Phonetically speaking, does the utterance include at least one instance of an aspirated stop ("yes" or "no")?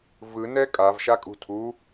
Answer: yes